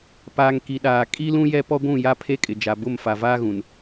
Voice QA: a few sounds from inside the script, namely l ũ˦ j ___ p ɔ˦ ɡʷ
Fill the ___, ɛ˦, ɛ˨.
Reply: ɛ˦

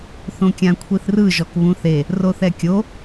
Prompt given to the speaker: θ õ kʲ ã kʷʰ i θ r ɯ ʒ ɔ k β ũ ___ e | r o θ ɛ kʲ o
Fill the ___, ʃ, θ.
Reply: θ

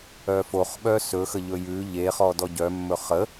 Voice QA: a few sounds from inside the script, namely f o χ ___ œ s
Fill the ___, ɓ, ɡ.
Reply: ɓ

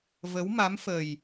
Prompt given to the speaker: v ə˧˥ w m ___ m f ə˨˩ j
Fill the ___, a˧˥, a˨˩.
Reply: a˧˥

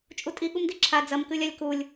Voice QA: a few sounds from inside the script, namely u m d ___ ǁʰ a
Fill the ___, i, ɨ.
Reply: i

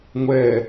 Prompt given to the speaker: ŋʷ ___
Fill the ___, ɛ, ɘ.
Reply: ɛ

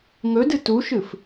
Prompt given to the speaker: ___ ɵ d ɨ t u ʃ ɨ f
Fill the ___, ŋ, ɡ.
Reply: ŋ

